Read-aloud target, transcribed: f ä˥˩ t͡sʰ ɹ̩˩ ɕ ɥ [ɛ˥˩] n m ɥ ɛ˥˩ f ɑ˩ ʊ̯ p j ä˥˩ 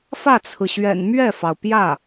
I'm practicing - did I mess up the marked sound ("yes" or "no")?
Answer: yes